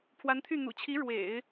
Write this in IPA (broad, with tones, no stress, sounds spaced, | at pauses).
pʰ w a˧˥ n t̪ʰ y˥˩ n̪ ṵ˨˩ t͡ɕʰ i˧˥ ɻ w ḛ˨˩˦ ɪ̯